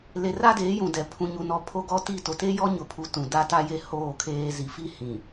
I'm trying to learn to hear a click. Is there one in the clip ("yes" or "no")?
no